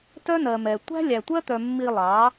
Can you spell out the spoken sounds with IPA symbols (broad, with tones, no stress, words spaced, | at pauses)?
tœ˦nɜ˨mɛ˨ tʷæ̤˦lʲæ˨tʷɜ˦t̪œ˨ mːi˧lˠɑ˨˦